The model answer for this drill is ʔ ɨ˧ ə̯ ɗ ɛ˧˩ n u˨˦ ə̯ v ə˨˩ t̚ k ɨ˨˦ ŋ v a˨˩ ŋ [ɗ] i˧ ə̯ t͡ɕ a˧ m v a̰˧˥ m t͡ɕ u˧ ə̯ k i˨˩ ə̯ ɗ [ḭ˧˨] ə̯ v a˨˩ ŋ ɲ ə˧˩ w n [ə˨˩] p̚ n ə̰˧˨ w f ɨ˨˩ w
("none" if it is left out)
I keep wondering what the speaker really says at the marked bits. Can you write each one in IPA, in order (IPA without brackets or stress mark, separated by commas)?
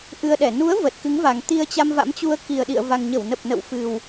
t̪, ḭ˧˨, ə˨˩